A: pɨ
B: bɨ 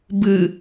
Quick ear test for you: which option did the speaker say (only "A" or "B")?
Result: B